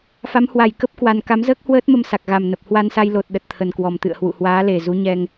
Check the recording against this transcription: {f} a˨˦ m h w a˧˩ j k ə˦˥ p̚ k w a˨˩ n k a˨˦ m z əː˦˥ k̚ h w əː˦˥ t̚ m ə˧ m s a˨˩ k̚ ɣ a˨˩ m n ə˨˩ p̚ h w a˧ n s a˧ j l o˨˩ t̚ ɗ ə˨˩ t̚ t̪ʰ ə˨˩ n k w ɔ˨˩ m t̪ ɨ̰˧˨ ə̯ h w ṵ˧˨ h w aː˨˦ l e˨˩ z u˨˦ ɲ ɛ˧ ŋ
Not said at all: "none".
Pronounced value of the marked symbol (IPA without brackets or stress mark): f